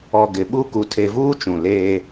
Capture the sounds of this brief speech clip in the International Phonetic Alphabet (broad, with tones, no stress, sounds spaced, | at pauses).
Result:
ɔ˨ ɡ ɪ˨ ɓ u˦ k u˨ tʰ e˨ v uː˦ t͡ʃ ũ˨ l eː˦